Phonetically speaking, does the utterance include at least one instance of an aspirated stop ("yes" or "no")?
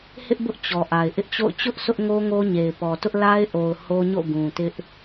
no